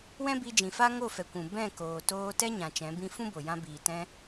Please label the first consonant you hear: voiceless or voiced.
voiced